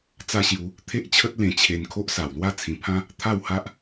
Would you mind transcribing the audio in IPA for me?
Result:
t͡sa˦ɕju˧ | t̪ʰe˦ʔt͡ɕʰə˦t̚ lẽ˧ t͡ɕʰe˧n kʰo˦ʔsa˨˩wlwa˥˧ t͡sʰĩ˨˩pʰã˦ | t̪ʰa˥˧wha˦ʔ

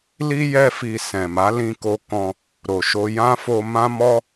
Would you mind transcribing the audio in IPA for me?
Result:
li˦ jɛ˦fi˧ sɛ̃˨ma˨˦lĩ˧ko˧ kɔ̃˧ | ɾo˨ʃo˧ jã˦fo˧ mã˦ mɔ˦

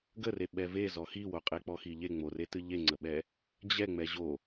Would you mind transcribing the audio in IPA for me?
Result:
ɡəre ɓɛvezɔ xiwo qʼek͡pɔxiʎe ŋ͡moretɨ ʎeŋ͡ǀəɓɛ | d͡ʑɛ ŋ͡mɛʑo

